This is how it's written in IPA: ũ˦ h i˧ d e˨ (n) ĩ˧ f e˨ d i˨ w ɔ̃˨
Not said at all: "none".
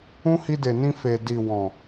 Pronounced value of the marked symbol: n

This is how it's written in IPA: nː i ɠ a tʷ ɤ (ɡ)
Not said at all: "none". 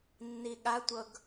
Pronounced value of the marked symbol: ɡ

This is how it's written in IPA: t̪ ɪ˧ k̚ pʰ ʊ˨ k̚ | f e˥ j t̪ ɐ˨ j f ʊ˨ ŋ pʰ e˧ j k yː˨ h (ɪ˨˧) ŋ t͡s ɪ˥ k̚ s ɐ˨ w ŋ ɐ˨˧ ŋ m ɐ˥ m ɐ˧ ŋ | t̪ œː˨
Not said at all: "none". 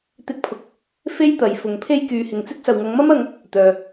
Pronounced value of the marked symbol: ɪ˨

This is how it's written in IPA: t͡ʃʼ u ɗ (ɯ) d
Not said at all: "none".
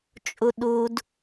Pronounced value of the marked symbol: u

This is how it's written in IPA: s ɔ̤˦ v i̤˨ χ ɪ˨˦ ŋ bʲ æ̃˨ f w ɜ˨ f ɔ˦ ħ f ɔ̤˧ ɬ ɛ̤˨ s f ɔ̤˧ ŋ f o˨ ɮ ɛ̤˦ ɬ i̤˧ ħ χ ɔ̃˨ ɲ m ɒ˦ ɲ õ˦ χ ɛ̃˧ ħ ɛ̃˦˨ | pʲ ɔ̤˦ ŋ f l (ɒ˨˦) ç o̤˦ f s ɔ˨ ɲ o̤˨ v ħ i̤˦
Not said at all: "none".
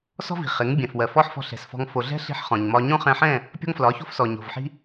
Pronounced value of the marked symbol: ɒ˨˦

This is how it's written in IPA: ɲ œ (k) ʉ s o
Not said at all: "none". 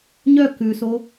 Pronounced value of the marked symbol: k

